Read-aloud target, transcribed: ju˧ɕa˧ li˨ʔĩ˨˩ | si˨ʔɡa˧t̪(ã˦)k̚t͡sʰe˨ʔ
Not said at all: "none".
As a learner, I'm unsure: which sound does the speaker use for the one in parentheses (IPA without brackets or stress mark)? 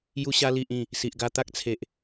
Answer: a˦